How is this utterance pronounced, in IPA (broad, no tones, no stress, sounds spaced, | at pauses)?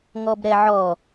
ŋ ɔ b ɾ ɛ ʕ ɔ